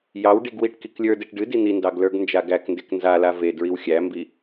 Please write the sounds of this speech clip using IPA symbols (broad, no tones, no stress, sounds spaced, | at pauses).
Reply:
j ɑ w ɖ i ɡ w i ʈ k i k lʲ ə˞ d e ʈ ɖ ɨ d i n̪ i n d ɑ ɡ l ə˞ ɡ n d͡ʒ a ɡ æ k n d e k n z a l a v e d ɹ i w xʲ æ m b i